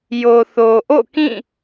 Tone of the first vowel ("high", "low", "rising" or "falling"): low